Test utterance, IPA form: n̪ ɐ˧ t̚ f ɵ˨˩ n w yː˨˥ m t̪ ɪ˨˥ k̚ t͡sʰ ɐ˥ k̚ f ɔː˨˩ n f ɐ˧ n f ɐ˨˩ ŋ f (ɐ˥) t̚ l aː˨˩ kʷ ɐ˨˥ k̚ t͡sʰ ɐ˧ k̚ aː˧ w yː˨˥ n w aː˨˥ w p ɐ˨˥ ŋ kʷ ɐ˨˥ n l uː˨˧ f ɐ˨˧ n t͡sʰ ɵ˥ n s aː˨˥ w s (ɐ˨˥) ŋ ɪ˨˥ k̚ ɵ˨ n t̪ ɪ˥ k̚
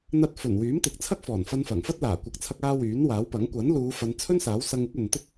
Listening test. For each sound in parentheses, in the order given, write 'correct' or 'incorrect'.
correct, incorrect: ɐ˧

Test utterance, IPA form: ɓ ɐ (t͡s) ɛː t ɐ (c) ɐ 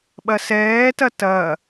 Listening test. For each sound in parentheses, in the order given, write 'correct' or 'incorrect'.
incorrect: s, incorrect: t

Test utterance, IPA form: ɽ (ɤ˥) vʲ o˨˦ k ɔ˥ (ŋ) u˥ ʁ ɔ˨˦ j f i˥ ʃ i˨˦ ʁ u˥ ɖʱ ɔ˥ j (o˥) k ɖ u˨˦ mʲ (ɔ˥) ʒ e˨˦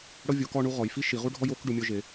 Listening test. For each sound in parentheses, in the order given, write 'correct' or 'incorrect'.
correct, incorrect: ɳ, correct, correct

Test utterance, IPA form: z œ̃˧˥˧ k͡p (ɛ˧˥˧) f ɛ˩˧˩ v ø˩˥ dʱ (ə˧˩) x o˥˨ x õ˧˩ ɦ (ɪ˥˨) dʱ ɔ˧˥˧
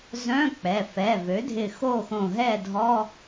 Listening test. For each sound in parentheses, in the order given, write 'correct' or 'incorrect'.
incorrect: ɛ˩˧˩, incorrect: ɪ˧˩, incorrect: ɛ˥˨

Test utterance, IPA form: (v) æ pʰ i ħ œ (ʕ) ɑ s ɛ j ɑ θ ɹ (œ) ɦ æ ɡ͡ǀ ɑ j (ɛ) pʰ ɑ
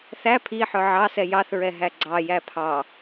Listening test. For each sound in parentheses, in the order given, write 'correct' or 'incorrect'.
incorrect: θ, correct, incorrect: ɛ, incorrect: æ

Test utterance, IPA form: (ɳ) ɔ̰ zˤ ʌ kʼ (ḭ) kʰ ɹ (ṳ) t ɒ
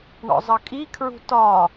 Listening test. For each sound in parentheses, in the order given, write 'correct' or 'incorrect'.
correct, incorrect: i, correct

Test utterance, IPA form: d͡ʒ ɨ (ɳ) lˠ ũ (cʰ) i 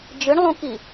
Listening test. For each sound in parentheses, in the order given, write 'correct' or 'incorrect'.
correct, incorrect: k

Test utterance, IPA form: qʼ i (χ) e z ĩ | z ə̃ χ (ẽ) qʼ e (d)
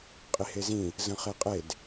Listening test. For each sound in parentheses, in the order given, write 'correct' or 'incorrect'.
incorrect: h, incorrect: e, correct

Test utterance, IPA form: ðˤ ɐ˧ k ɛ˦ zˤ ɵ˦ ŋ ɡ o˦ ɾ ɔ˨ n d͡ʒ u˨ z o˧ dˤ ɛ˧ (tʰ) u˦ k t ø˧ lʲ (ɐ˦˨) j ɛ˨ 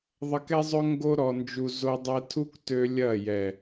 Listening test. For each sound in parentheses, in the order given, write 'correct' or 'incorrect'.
correct, correct

